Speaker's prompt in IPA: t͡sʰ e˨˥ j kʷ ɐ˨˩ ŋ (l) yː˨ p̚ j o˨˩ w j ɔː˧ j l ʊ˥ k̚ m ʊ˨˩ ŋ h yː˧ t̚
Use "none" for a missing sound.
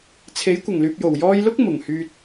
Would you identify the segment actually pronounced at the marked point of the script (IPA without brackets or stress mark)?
l